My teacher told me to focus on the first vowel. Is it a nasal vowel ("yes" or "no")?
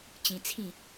yes